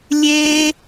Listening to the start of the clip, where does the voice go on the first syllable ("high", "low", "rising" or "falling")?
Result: high